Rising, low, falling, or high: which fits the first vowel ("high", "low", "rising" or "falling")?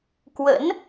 rising